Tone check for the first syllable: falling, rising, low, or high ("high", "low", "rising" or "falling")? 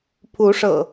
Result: rising